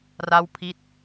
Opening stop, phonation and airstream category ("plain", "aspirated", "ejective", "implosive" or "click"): aspirated